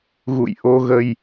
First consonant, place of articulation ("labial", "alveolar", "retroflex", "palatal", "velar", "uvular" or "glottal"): velar